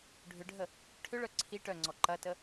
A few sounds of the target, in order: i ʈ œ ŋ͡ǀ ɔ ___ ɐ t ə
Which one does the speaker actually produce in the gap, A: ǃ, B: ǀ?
A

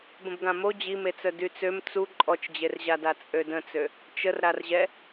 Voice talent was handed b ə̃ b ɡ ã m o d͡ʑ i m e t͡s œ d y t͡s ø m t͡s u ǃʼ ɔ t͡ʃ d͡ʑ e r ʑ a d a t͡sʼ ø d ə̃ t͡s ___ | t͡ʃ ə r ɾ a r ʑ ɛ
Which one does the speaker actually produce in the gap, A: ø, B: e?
A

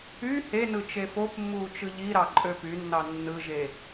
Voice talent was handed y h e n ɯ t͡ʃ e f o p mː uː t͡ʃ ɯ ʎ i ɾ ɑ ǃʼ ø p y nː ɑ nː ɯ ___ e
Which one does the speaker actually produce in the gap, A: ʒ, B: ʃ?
A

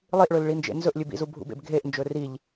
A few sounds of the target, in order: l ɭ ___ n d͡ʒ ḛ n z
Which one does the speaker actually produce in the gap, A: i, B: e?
A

